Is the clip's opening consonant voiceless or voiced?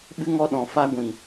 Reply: voiced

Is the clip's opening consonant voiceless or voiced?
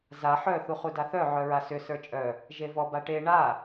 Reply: voiced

